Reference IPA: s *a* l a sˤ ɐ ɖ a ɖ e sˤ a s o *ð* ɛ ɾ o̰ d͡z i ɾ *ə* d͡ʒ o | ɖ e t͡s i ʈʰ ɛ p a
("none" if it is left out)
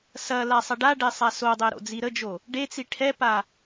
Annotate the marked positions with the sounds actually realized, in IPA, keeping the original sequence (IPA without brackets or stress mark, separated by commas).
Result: ɐ, dˤ, ə